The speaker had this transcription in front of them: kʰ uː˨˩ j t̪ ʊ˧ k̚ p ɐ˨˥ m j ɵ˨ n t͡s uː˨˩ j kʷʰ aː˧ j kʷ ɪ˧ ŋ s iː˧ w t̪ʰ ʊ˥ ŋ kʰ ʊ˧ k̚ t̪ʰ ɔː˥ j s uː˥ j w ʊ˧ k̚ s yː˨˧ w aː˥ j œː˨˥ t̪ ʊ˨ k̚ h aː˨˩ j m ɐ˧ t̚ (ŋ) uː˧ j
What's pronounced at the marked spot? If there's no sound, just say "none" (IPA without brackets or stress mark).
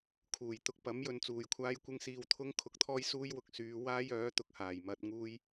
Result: ŋ